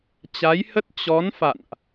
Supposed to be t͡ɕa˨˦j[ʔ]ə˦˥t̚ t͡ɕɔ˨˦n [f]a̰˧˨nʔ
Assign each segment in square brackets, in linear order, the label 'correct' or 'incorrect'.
incorrect: h, correct

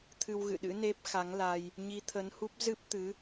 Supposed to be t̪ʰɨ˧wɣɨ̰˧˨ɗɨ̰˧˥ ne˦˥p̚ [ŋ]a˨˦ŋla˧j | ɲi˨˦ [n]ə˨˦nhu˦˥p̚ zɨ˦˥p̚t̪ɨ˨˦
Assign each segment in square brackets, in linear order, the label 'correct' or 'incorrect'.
incorrect: x, incorrect: t̪ʰ

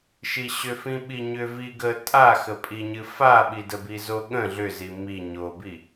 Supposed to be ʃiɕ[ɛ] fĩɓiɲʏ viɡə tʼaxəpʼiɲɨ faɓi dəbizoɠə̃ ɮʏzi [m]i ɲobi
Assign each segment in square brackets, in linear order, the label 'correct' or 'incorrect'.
incorrect: ʏ, correct

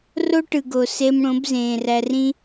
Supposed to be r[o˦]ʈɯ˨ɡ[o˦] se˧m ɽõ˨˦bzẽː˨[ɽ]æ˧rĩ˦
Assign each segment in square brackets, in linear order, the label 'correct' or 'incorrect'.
correct, incorrect: o˨, incorrect: r

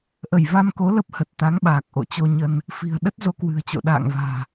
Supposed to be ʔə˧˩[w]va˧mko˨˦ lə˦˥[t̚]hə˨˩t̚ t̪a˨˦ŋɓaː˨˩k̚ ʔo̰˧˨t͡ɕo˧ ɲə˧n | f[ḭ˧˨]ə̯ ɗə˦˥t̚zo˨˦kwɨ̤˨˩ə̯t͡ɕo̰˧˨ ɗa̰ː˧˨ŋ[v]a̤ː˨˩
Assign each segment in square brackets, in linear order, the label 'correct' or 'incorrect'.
incorrect: j, incorrect: p̚, incorrect: i̤˨˩, correct

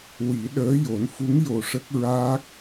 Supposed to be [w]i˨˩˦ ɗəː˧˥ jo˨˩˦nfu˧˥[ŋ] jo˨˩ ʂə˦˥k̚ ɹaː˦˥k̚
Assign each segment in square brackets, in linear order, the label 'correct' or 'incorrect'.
correct, correct

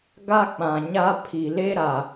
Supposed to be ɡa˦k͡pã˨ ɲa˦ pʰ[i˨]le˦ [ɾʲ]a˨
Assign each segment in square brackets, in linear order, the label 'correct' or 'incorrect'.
correct, incorrect: ɾ

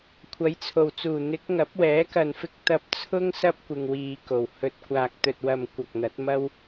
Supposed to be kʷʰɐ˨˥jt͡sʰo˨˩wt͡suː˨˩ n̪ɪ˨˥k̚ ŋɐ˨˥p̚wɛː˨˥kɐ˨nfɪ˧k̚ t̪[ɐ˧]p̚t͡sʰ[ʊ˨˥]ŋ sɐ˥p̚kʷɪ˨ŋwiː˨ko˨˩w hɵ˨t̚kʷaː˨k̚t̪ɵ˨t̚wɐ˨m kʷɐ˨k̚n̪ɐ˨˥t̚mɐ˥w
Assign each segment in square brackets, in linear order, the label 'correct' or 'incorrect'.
correct, incorrect: ʊ˥

